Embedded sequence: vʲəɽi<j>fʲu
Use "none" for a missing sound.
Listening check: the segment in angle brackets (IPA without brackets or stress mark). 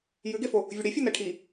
none